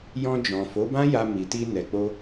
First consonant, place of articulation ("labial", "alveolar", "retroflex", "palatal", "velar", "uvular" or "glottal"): palatal